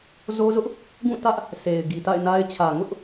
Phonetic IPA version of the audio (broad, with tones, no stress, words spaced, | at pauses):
zo˦zʊ˦ʔ | ɡũ˦˨ tä˦ʔ | se˨ɪ̯ ɡi˨ta̰˦˨ɪ̯na˦ɪ̯ t͡ɕʰä˨ŋʊ˦ʔ